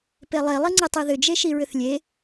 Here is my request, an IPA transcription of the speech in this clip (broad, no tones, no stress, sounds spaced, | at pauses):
p e lˠ e lˠ i ŋ͡ǀ i tˤ i ð ʏ d͡ʒ e ʃ i ɹ ʏ θ lʲ e